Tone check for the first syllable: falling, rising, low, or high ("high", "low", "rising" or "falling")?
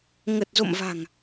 low